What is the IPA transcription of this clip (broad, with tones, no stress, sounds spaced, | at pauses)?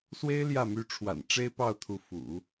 s w e˥ ɪ̯ l j ä˥˩ m y˧˥ ʈ͡ʂʰ w a̰˨˩ n ʈ͡ʂ e˥ ɪ̯ p ɑ˥˩ ʊ̯ t̪ʰ u˧˥ f ṵ˨˩˦